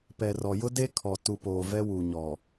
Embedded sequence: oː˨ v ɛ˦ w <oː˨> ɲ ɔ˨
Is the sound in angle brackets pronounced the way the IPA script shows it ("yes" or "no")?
no